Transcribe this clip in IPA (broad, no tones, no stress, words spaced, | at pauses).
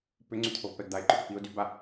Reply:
pʏŋ͡ǀyt̪ʰovpɛɡ d̪aɪ̯ǃʏʈʏpiʊ̯ dyba